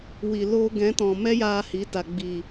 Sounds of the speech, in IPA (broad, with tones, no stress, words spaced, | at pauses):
wi˨loː˧ ɡɛ̃˨˦tɔ̃˨ mɛ˦jaː˧hi˨˦ ta˨ ɡ͡biː˨